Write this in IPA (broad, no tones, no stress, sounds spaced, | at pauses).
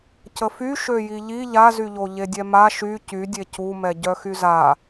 c ə f y ʃ ø j i ʎ i ʎ a z y ʎ o ʎ e dʲ ɛ m a ʃ y c y dʲ e c u m ɛ ɟ œ x y z a